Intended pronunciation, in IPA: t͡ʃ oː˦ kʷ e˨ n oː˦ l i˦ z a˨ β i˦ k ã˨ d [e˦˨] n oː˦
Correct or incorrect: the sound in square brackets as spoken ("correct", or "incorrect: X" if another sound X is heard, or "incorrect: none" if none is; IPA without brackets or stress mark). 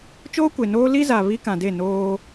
correct